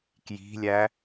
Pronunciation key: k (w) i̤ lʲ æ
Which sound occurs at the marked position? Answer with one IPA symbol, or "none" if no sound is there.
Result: j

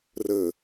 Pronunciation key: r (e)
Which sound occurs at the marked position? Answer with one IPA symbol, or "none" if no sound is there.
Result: ɘ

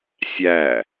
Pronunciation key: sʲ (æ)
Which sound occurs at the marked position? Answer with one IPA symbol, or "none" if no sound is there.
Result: æ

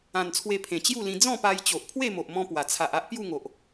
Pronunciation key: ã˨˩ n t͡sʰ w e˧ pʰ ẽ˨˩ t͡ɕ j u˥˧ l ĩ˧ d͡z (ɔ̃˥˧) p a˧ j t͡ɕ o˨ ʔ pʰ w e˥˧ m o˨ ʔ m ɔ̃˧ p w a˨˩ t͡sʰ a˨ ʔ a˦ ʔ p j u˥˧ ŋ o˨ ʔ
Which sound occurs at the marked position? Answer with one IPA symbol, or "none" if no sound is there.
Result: ɔ̃˥˧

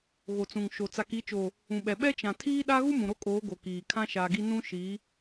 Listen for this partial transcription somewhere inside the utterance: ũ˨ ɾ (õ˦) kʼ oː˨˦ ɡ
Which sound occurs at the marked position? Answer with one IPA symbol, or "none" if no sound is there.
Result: o˦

